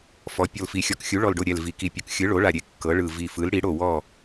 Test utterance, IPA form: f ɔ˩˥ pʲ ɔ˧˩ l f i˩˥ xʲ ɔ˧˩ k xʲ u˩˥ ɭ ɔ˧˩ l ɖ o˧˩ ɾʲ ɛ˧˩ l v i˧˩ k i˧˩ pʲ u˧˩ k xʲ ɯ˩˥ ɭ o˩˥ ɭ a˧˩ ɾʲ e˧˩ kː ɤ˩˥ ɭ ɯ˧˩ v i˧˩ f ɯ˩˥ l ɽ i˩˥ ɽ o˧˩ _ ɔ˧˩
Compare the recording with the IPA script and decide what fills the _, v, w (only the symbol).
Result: w